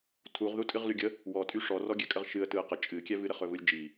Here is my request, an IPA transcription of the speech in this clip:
tʰ u ʁ ð u tʼ ɨ ʁ l y ɡʲ ə | w ɔ tʼ y ʂ ɔ r ɔ ɡʲ ɛ kʼ ə ʁ ʃ ɨ ə̯ t ɯ ə̯ q ə t͡ʃʼ ɨ kʲ ɛ v ɨ ɾ ə χ ɵ v ɯ lʲ d͡ʒ i

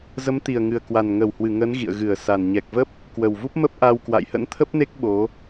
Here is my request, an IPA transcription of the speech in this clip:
z ə˨˦ m t̪ i˨˩ ə̯ ŋ ɨ˨˩ ə̯ k w a˨˩ n ŋ ə˧˩ w h w ɨ˧˩ ŋ ə˨˦ n ɣ ḭ˧˨ ə̯ ɣ ɨ˧˩ ə̯ s a˨˩ n ɲ ɛ˨˩ k̚ v ə˦˥ p̚ | k w ə˨˩ w v u˦˥ p̚ m ə˦˥ p̚ ʔ a˧ w k w a̰˧˨ j h ə̰˧˥ n t̪ʰ ə˦˥ p̚ n e˦˥ k̚ ɓ o˨˦

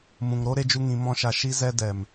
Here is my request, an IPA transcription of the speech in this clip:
m ũ˨ ŋ ɾ o˦ ɾ e˧ d͡ʒ u˧ ŋ ĩ˨˦ m ɔ̃˦ ʃ a˧ ʃ i˦ z ɛ˦ d ɛ˨ m

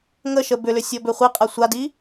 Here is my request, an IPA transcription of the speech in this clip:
ŋ ə ʃ ə b ʏ l ʏ sʲ ɔ b ʏ χʷ i qʼ a sʷ a d i

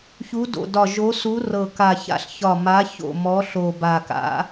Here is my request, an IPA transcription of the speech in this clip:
ç u˨˦ d o̰˨˩ d ɒ˨˩ ʒ o˨˦ s u˨˦ r ɤ˨˩ k a˨˩ ç a̰˨˦ ɬ ç ɒ˨˩ m a˨˦ ç o̰˨˩ m ɔ˨˦ ɬ o˨˩ b a˨˩ k a̰˨˦

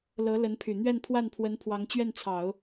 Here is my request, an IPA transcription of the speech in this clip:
l ɤ˧˥ l ə˧˥ n pʰ y˨˩ n̪ ɥ ɛ˥˧ n pʰ w a˥˩ n pʰ w ə˧˥ n pʰ w ɑ˧˥ ŋ t͡ɕ ɥ ɛ˥˩ n t͡sʰ ɑ˨˩˦ ʊ̯

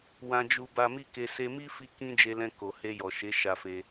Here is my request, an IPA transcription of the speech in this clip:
w ã˧ d͡ʒ u˧ b a˧ m i˦ k e˧ s e˧ m i˦ f i˧ k ĩ˦ d͡ʒ e˧ l ɛ̃˧ k o˨ h e˧ j ɔ˨ ʃ e˨˦ ʃ a˧ f e˧

